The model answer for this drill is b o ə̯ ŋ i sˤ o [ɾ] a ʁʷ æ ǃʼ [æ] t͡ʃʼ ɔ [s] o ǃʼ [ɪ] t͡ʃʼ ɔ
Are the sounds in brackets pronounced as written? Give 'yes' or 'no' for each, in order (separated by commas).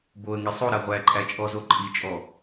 yes, yes, no, no